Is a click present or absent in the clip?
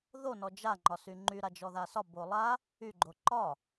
present